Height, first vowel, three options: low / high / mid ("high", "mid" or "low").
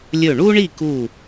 mid